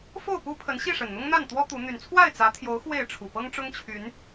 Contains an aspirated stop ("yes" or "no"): yes